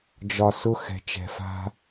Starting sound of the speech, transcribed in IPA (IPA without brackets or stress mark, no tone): d͡ʒ